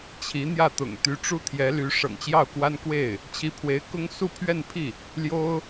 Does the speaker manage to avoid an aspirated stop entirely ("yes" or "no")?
no